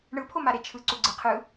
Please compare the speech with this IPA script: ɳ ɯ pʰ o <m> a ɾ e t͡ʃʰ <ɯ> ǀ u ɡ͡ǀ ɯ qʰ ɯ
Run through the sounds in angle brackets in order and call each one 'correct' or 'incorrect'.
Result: correct, correct

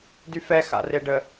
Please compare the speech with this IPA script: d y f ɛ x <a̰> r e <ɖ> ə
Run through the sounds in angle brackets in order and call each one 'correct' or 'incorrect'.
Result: correct, correct

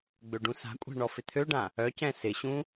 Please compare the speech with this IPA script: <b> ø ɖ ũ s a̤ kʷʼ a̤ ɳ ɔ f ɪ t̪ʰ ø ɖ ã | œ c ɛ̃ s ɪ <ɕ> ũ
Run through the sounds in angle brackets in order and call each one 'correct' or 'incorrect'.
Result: incorrect, correct

